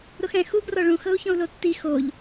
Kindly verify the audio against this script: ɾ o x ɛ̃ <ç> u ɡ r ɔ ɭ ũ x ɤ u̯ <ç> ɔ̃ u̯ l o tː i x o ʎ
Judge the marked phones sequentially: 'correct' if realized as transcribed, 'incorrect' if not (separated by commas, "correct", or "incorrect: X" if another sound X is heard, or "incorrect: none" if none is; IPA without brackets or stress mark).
incorrect: x, correct